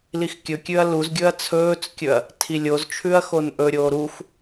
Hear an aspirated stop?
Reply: yes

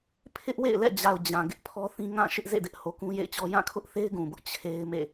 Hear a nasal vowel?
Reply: yes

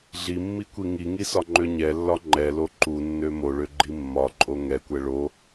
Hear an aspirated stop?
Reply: no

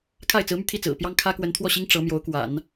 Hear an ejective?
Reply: no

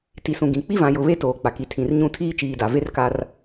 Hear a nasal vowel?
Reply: yes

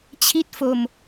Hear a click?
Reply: no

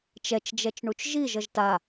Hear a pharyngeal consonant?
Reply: no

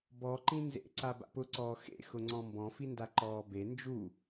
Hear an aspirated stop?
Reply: no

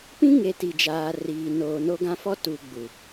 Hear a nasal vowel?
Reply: yes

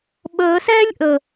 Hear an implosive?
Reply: yes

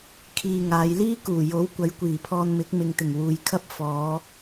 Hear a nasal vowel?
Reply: no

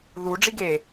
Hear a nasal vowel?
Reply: no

